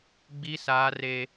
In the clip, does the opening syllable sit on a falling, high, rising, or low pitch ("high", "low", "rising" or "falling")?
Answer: high